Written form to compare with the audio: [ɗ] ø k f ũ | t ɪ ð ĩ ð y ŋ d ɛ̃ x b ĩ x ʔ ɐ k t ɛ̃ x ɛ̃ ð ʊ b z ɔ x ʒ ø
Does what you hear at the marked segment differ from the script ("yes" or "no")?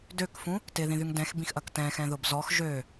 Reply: yes